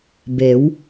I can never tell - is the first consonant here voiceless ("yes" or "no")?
no